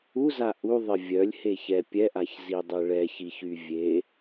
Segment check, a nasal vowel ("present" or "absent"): absent